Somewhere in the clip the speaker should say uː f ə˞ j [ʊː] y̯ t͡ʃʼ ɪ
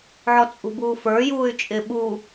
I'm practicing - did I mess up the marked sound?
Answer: yes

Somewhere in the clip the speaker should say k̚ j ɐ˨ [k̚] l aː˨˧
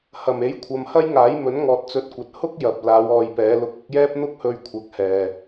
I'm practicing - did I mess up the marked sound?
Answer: yes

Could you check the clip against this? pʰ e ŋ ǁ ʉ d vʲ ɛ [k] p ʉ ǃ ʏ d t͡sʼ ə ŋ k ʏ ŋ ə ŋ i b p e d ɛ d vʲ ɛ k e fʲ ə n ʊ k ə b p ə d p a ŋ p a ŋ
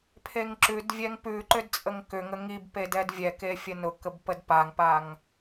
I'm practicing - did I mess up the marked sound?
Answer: yes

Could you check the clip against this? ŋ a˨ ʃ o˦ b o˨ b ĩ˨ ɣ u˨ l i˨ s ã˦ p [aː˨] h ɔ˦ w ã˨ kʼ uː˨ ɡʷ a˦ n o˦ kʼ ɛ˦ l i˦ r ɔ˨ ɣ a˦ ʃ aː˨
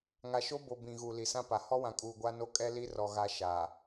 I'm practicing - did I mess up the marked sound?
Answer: yes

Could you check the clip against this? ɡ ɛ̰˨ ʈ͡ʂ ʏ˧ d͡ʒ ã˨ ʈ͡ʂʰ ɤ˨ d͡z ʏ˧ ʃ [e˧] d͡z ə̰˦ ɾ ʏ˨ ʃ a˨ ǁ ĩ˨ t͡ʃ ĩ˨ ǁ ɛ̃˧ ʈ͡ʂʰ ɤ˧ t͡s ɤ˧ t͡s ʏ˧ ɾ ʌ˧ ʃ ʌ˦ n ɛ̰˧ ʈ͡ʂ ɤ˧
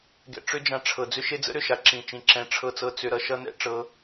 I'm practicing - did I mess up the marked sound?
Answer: no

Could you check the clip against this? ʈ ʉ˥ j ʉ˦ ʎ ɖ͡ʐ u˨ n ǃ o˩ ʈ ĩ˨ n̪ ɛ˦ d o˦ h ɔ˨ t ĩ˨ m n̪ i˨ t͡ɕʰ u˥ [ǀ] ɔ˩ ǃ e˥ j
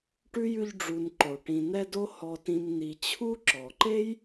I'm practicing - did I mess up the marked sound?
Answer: yes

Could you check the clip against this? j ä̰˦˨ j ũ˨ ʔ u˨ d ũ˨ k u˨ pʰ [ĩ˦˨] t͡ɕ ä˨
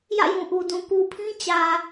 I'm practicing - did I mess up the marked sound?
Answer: yes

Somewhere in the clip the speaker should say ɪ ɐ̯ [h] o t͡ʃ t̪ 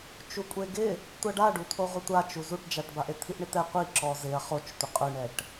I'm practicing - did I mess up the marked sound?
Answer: yes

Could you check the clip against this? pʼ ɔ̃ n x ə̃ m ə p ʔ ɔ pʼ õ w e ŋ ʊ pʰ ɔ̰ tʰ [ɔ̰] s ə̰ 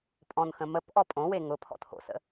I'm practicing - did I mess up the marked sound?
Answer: yes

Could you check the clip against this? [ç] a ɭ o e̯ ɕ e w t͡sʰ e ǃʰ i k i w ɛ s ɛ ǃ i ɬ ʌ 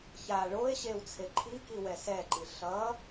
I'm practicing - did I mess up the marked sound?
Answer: no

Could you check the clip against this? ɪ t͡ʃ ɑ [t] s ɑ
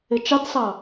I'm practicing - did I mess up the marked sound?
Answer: no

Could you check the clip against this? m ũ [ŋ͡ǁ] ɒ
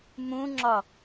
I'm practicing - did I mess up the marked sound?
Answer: no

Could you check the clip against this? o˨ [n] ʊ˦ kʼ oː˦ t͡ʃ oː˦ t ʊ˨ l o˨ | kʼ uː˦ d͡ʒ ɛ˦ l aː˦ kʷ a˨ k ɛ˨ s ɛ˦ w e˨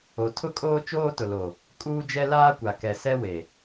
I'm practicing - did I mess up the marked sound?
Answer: yes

